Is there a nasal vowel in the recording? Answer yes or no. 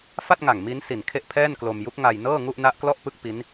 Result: no